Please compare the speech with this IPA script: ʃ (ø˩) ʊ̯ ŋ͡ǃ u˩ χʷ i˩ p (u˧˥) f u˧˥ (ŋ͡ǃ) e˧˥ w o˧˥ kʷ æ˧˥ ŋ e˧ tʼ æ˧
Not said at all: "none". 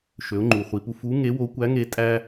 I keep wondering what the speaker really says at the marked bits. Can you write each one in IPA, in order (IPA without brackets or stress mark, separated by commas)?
ø˩˧, u˧, ŋ